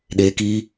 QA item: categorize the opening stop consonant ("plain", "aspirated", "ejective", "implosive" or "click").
implosive